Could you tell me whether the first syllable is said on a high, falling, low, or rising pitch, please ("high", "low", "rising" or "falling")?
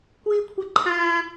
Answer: high